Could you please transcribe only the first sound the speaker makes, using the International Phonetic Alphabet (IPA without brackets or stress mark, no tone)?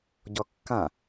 ɟ